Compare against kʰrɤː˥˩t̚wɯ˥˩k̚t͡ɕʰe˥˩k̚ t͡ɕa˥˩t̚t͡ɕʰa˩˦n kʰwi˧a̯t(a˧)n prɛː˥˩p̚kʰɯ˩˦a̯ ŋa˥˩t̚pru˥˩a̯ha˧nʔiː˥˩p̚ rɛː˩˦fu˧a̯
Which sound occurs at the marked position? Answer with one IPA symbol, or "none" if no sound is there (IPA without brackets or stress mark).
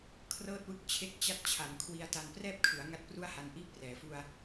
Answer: a˧